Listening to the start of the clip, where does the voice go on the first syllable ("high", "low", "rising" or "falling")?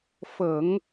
low